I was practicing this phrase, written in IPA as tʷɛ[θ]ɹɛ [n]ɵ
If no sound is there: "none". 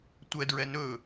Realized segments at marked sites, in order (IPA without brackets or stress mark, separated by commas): d, n